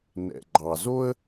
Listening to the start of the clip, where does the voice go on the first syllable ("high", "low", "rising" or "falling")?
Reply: low